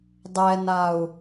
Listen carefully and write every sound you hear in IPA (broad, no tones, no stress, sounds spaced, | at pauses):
dˤ ɛ n a u̯